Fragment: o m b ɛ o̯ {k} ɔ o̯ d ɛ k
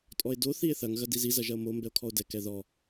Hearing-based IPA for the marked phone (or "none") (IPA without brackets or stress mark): kʰ